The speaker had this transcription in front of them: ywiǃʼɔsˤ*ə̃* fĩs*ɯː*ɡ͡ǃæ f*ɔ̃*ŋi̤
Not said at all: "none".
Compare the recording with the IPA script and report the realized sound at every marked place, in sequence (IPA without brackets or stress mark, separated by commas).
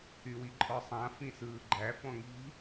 ã, ɯː, ɔ̃